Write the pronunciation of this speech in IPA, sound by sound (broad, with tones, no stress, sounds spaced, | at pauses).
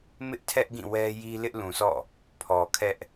m ɪ˦ ʔ tʰ ɛ˦ ʔ ɡ ĩ˦˨ w ɛ˦ j i˦ l ɪ˦ ʔ l ũ˨ sʰ ɔ̰˦˨ | pʰ ɔ˨ kʰ ɛ˦ ʔ